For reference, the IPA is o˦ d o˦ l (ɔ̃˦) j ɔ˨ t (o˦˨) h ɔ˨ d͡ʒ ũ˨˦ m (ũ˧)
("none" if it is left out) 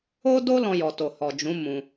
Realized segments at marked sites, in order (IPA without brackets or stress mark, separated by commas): ɔ̃˧, o˨, ũ˧